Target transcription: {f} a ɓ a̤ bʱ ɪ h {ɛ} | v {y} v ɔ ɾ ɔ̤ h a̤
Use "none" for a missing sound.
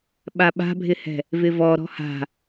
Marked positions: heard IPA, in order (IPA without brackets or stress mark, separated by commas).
ɓ, ɛ̤, ɪ